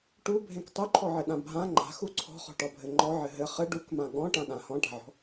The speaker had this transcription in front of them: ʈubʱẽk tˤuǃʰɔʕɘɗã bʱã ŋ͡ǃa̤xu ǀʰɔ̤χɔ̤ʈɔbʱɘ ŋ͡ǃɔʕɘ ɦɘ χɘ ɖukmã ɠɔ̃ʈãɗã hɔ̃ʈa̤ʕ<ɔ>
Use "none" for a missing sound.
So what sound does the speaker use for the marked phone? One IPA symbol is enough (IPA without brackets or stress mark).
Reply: ɔ̤